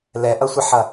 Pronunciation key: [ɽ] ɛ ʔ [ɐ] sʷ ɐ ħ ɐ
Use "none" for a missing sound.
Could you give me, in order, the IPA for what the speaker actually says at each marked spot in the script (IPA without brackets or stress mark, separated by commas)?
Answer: l, ɐ